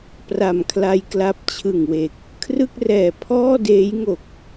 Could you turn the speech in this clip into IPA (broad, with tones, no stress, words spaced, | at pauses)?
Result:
pra˨˩mkʰla˧j kla˦˥p̚t͡ɕʰɯ˨˩ŋwe˨˩k̚ | kʰrɯ˥˩k̚rɛː˨˩ pʰɔː˥˩ deː˦˥jŋo˨˩k̚